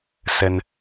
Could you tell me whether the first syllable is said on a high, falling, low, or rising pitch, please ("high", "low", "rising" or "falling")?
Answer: low